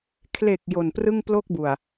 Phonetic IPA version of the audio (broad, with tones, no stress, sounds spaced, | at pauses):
kʰ l e˨˩ k̚ j o˨˩ n p r ɯ˥˩ ŋ p l o˥˩ k̚ b u˨˩ a̯